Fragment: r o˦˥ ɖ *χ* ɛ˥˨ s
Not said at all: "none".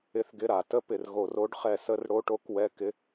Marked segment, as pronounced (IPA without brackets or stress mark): χ